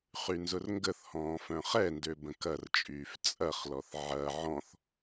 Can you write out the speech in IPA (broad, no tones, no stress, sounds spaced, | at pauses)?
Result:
χ y n z ʊ r ŋ ɡ ə θ h ɔ̃ː f œ̃ χ ɛ n d ø b ə̃ k ɐ r t͡ʃʼ yː f t͡sʼ ɐ χ l ɔ θ ʕ ɐ ʕ ɔ̃ θ